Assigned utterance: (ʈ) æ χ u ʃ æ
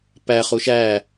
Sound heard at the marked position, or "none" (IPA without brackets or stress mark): p